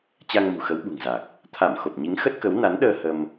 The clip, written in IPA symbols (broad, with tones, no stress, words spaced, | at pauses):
t͡ɕa˧ŋmṳ˨˩xə˨˦w ɓṳ˨˩ŋza˨˩k̚ | t̪ʰa˧˩m xo˨˩p̚ɲi˨˦ŋxə˦˥t̚kə˨˦w na˨˦nɗəː˧ hə˧m